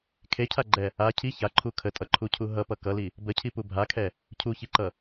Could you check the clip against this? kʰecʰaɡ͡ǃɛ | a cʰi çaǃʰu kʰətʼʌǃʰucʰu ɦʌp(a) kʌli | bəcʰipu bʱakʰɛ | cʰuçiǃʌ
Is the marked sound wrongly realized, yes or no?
yes